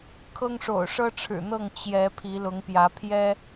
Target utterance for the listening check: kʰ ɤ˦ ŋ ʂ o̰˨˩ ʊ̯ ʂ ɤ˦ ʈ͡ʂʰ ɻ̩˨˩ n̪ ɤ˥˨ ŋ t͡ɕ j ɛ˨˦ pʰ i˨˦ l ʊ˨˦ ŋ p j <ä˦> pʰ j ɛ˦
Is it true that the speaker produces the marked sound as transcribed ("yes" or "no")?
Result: no